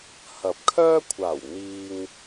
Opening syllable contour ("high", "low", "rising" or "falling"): rising